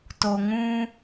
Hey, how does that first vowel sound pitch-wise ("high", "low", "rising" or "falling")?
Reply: low